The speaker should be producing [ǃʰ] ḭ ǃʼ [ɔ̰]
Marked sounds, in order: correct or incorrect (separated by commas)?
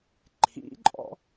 correct, correct